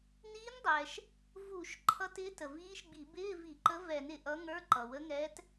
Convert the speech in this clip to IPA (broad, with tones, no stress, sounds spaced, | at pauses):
n iː˧˥ n dˤ ɛː˩ ʃ | v u˧˩˧ ʃ ǃʰ ʌ˧˥ t ɪː˧˥ t ə˩ v iː˧˥ ʃ ɡ͡b i˧˩˧ b ɪː˧˥˧ v i˧˩˧ ǃ ə˧˥ v ɛ˧˩˧ n ɪ˩ ʔ ʌ˧˥ ŋ ə˞˧˥˧ ǃ ʌ˩ w ə˧˥ ŋ ɛː˧˥ t